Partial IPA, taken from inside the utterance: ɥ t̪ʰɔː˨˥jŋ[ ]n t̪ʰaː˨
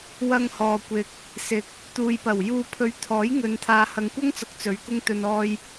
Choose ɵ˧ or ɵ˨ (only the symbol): ɵ˨